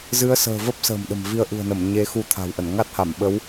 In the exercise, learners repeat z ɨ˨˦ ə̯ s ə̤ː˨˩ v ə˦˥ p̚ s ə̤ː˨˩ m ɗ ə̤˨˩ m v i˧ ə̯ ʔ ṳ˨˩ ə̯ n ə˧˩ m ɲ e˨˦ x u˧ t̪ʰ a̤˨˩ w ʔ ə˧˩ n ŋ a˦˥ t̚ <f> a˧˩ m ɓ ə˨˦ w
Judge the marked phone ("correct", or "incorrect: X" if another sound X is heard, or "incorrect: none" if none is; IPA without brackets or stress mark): incorrect: h